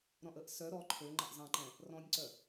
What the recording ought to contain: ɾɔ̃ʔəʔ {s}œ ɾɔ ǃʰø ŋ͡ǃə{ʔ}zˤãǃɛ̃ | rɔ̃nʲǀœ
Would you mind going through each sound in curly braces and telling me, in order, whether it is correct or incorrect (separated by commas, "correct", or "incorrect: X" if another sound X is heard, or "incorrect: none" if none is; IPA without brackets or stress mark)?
correct, correct